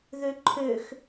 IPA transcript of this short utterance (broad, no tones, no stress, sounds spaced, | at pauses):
ð ø ǃʰ ø x